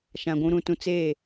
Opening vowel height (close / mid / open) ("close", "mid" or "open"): open